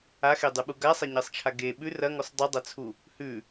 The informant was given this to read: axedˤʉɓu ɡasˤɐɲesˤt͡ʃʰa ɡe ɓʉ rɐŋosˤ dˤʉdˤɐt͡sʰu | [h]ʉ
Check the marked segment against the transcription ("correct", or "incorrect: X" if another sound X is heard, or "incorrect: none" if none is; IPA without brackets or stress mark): correct